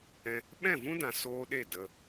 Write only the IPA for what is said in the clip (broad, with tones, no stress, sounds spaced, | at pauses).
ɛ̃˧ | ɓ ɛ̃˦˨ v ũ˦ d ã˧ s oː˦ ɗ e˦˨ d ə˧